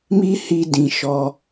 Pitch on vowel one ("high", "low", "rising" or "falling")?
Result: high